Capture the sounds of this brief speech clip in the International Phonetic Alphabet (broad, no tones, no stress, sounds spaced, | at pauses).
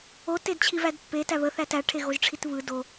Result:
o t e d t͡ɕʰ i v æ d pː e t æ β ə θ æ t æ ʈʰ e ɣ o ʒ ʈ͡ʂʰ i t β ɯ d o